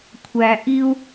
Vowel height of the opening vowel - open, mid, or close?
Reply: open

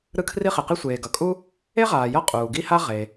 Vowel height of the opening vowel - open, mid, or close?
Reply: close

